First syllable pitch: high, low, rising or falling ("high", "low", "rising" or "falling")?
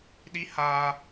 high